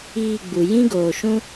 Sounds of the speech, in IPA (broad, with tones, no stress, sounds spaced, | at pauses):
iː˦˨ ɡ͡b u˨ j ĩ˦ ɡ oː˨ ʃ ũ˦